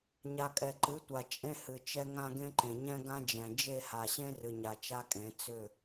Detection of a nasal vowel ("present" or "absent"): present